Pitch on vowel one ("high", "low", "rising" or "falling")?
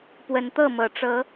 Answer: rising